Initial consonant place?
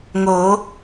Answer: velar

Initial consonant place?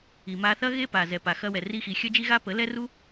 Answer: labial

